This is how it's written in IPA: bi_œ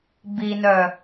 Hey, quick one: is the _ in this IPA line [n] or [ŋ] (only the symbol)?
n